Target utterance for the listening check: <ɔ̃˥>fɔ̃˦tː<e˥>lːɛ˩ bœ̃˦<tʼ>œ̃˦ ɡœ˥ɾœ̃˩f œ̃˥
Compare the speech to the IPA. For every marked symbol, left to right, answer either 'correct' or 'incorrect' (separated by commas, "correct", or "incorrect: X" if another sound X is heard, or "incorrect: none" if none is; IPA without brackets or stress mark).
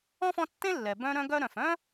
correct, incorrect: ẽ˥, incorrect: ɾ